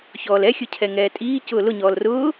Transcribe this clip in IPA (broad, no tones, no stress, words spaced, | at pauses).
çɔːlɛxʲʊcʰɛ ŋɛːtʼiː cʊːlʊɲɔːl rʊː